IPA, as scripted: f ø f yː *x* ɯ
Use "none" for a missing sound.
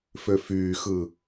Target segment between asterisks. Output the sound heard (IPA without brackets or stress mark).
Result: x